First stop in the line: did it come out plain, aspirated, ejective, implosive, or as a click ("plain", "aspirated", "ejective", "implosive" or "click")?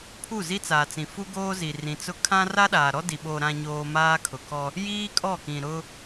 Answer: aspirated